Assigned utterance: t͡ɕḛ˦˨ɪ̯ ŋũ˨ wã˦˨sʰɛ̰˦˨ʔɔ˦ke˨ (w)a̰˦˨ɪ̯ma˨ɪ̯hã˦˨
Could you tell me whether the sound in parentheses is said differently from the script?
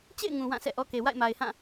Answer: no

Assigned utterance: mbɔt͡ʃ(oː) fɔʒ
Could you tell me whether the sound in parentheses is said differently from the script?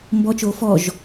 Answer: no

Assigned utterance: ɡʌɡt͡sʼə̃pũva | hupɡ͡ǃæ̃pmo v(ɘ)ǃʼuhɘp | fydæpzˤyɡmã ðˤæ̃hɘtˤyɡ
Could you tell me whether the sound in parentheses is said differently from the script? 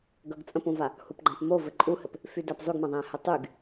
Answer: no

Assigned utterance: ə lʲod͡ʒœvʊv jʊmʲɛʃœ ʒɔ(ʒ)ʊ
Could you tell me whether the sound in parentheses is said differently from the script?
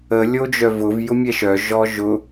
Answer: no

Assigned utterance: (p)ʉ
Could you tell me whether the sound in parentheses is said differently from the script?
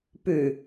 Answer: no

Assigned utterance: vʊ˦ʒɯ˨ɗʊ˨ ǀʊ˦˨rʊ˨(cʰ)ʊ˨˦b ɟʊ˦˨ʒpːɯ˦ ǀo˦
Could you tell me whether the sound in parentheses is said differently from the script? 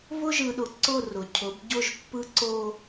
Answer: no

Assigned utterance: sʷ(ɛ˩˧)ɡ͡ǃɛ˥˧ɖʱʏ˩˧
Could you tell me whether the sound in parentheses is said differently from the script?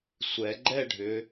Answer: no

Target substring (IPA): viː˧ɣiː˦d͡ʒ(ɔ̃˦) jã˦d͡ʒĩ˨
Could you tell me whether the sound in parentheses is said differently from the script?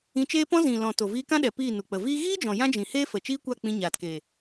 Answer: yes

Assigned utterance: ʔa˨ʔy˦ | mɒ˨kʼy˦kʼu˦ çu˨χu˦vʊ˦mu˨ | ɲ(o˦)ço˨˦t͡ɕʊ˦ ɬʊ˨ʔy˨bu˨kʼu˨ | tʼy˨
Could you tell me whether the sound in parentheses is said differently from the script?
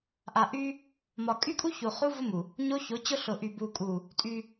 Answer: no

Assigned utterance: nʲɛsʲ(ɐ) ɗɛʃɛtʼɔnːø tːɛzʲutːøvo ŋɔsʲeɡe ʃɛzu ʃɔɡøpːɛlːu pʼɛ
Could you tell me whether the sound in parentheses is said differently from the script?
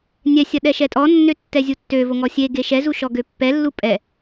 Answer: no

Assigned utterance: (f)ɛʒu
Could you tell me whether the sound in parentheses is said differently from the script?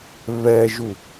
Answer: yes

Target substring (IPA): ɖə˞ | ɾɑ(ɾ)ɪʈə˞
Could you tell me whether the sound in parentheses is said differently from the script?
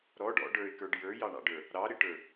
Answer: no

